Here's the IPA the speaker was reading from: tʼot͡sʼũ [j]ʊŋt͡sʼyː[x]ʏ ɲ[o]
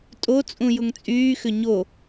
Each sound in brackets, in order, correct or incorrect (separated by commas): correct, correct, correct